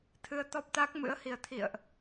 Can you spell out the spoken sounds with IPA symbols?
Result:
t̪ʰ ɨ˧ ə̯ t̪ ɔ˦˥ p̚ t̪ a˦˥ k̚ m ɨ̰˧˥ ə̯ h i˨˩ ə̯ t̪ʰ ḭ˧˨ ə̯ ʔ

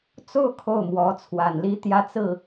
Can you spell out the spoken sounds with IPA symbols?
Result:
t͡s o˥˧ ʊ̯ kʰ o˥˩ ʊ̯ m w ɔ˧˥ t͡sʰ w a˨˩ n l i˥ t̪ j ä˥˧ t͡s ɹ̩˥˩

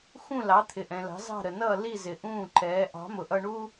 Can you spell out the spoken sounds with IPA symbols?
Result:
x ũ˥˩ l ɑ˩˥ t̪ʰ ɪ˩ ʔ ɛ̃˩ l ɑ̤˩˥ z ɑ̤˥˩ ɾ ə˩ n ʌː˥˩ l i˥˩ z ɪ˩ ʔ ũː˥˩ ǃ ɛː˩˥ ʔ ɑ̤˩˥ m ʊ˩ ʔ ʌ˧ ɳ u˥

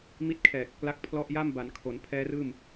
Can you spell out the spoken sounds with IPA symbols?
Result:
m i˦˥ t̚ kʰ ɛː˨˩ k̚ | l a˦˥ k̚ pʰ l ɔ˥˩ ʔ j a˥˩ m b a˩˦ n kʰ o˩˦ n pʰ ɛː˦˥ r ɯː˥˩ m

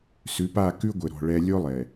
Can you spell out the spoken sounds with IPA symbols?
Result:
s ʉ˨˦ p a˦˨ k ʉ˦ ɡʷ ɘ˨ ɾ ɔ̤˨ ɭ ɛ˨ lʲ o˦ lˠ ɛ˨

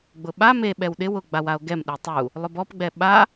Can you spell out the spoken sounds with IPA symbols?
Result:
ɡ͡b ʊ ɓ a m e ɓ ɛ w ɗ ɪ w ʊ ɡ͡b a w a o̯ ɡ ɛ m ɗ e tˤ u | lˠ ʊ b ɔ p ɡ͡b ɛ ɓ a

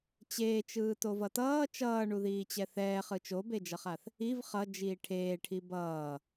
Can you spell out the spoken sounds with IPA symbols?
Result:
t͡ɕ eː t͡ʃ ɯː t o v ʌ t ʌː t͡ʃ ʌː ɳ u ð iː t͡ɕ ɛ θ ɛː χ ɯ t͡ʃ o b e d͡ʒ ʌ χ a θ | i v χ ʌ d͡ʒ iː ʈʰ eː ʈʰ i b ʌː

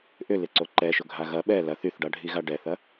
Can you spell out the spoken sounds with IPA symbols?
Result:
ʔ ʏ l ɪ ǀ o ǃ ɛ ʃ ʊ ɡʱ a ɣ ɐ ɓ ɛ l ɐ θ y θ ɖ a ɖʱ i ɣ a ɖ ɛ θ ɐ

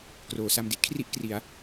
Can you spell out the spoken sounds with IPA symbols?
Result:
k r oː˩˦ s a˧ m d i˥˩ t̚ kʰ r i˥˩ ʔ k r i˩˦ a̯

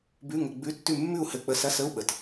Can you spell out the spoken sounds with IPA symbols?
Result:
b ʉ˧˥˧ ŋ ə˧˥˧ ɡ͡b ʉ˧˥˧ tː ʉ˥˨ mː ʉ˥˨ u̯ h ɘ˧˥˧ k͡p ə˧˥˧ s ɐ˧˥˧ s ə˧˥˧ u̯ ɓ ə˧˩ t

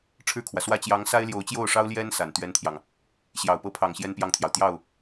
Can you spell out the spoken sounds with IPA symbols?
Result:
ʈ͡ʂʰ ɻ̩˥˩ kʰ w ä˩ s w ä˥ t͡ɕ j ɑ˧˥ ŋ s a˥ ɪ̯ l j o˧˥ ʊ̯ t͡ɕ j o˥˩ ʊ̯ ʂ ɑ˥ ʊ̯ l j ɛ˥ n s a˨˩ n t̪ ɥ ɛ˥ n t̪ʰ j ɑ˨ ŋ | ɕ j ɑ˨˩ ʊ̯ p ɤ˥ pʰ ɑ˨˩ ŋ ɕ j ɛ˥ n p j ɑ˥˩ ŋ t̪ʰ j ɑ˩ ʊ̯ t̪ j ɑ˥˩ ʊ̯

